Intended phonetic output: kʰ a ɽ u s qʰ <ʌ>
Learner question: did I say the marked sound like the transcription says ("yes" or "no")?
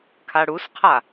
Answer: no